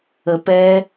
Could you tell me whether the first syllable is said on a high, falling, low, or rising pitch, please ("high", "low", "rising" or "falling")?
low